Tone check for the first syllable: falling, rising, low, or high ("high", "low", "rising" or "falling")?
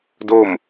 falling